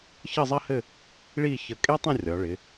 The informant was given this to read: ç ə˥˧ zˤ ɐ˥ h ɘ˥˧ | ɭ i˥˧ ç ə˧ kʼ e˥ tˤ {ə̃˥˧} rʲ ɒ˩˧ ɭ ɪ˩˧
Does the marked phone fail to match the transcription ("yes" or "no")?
no